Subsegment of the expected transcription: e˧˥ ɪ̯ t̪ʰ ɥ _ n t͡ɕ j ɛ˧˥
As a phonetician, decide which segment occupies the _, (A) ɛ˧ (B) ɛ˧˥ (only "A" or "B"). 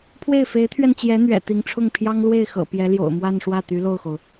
A